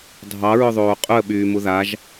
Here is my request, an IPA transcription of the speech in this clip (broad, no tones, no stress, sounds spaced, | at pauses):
dʱ ɑ ɹ ʊ ðˤ oː qʼ ʊ ə̯ ɓ yː m u ð a ʒ